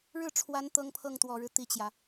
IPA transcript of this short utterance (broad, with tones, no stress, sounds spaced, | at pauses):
ɻ ɻ̩˥˩ ʈ͡ʂʰ w a˧˥ n t̪ ɤ˥ ŋ pʰ ɤ˥˩ ŋ t̪ w ɔ˨˩ ɻ ɻ̩˦ t̪ i˥ t͡ɕ j ä˨